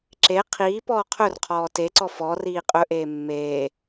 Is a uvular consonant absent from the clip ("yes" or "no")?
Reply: no